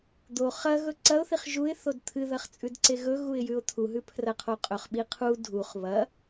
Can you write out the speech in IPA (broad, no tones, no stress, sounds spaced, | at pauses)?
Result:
d̪ o χ ɐ ɣ ɵ ǀ ɐ ʊ̯ θ i χ ʒ u ɪ̯ θ o d t̪ʰ ɨ ð ɐ χ t͡sʼ ʉ d ǀ e ɣ ɵ ɣ u ɪ̯ j ʉ ʊ̯ t̪ʰ u ɦ ʉ pʰ r ɐ qʰ o qʼ ɵ χ ɓ i qʰ u dʱ u χ β ɐ